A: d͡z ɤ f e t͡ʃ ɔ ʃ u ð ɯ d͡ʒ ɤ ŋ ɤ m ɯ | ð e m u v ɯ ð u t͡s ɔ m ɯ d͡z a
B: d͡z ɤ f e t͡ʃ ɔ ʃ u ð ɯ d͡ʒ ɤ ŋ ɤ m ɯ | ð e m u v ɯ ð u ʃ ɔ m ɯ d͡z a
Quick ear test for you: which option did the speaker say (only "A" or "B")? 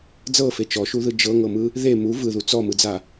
A